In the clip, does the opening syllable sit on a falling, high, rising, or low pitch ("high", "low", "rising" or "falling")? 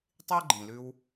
high